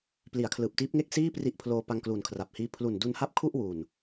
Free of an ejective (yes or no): yes